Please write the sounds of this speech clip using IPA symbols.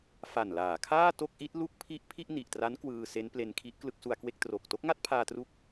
f a˨˩ n l aː˩˦ kʰ aː˥˩ t o˥˩ k̚ ʔ i˦˥ t̚ l u˥˩ k̚ pʰ i˥˩ ʔ pʰ i˥˩ ʔ n i˨˩ ʔ t r a˦˥ n k w ɯː˧ s e˦˥ n p l e˧ n kʰ i˦˥ ʔ k l ɯ˦˥ k̚ s u˧ a̯ k w e˥˩ k̚ t r o˨˩ k̚ t o˦˥ k̚ ŋ a˥˩ t̚ pʰ aː˧ t r u˦˥ k̚

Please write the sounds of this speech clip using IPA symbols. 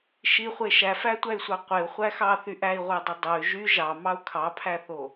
ʃ i χʷ e ʃ æ f æ tʷ æ y̯ sʷ ɑ qʷ e u̯ χʷ æ x ɑ θ y ʔ æ i̯ ʁʷ æ dˤ i dˤ o y̯ ʒ y ʒ ɑ m ɑ u̯ kʰ ɑ pʰ æ θ o

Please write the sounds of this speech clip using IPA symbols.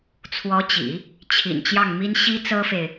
t͡sʰ w ɔ˧˥ t͡ɕ ḭ˨˩˦ | t͡ɕʰ ḭ˨˩ n t͡ɕ j ɑ˥˩ ŋ m i˥ n ɕ i˥ t͡s ɤ˥ f e˨ ɪ̯

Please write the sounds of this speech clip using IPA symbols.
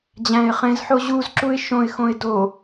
d͡ʑ æ̃ ɪ̯ χ ẽ z ħ o ʑ u z ǁ u ɪ̯ ʃ õ ɪ̯ x õ ɪ̯ d o

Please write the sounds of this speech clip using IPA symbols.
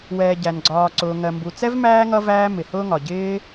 w ɛː˨ ɟ æ˩ n ɡ͡ǀ ɒː˨ ǀ ʊː˩ ŋ ɜ˩ m b u˩ t͡s ɛ˥ v m æː˦ ŋ ʌ˦ v æː˦ m ɪ˩ h ʊː˥ ŋ ɒ˩ ɟ ɪː˦

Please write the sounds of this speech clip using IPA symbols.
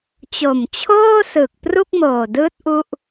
t͡ɕ o˨˩ m t͡ɕʰ oː˥˩ s ɯː˨˩ k̚ p r u˥˩ k̚ m oː˨˩ d ɯː˦˥ t̚ ʔ u˥˩ ʔ

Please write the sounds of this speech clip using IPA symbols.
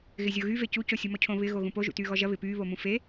ɣ ɪ zʲ o ɣ y v e c u c o sʲ u m ɔ cʰ õ β ɪ ɣ o ɣ ũ p o ʒ ṵ t yː ɣ ɔ ʒ ɐ β ɪ p yː β o m ũ f e

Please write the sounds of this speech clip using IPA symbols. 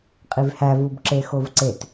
qʼ i v h æ v u b ǁ e x o v ǀ e t

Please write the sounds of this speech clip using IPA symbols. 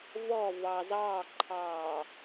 v ɔ v ɑ z ɑː ǃʰ ɑː

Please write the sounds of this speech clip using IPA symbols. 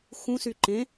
x ũ s y ǃ ẽ

